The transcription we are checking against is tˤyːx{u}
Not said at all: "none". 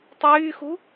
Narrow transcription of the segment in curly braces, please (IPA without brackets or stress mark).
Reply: u